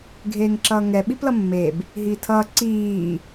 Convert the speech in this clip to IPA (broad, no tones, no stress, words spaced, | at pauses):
ɡʱeːŋǁʌːŋɛ ɓiplʌmːeb | ɦiːtʰʌː ǀiː